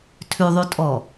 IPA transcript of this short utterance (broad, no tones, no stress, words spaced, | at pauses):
tʰʉðˤʉtʼɔ